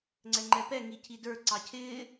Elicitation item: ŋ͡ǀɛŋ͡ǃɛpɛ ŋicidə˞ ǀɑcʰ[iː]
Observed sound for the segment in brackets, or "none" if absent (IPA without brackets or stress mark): ɪː